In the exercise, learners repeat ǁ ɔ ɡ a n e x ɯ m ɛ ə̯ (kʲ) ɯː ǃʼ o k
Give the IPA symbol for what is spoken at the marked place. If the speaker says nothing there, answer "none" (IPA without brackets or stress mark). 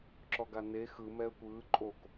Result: kʷ